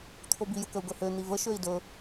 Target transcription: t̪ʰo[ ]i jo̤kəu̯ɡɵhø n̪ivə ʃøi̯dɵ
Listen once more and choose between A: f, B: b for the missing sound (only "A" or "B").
B